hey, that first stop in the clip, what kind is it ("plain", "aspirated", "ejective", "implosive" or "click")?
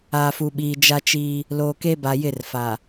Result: implosive